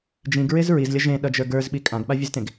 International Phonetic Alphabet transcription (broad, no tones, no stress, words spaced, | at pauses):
d͡ʒĩɡɹez ɹizlʲʌ ʒẽɗʌd͡ʒə˞ ɡə˞zɓi kʼãɡɓavʲɨztẽɡ